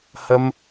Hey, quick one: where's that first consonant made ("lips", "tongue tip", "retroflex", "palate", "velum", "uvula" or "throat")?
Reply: throat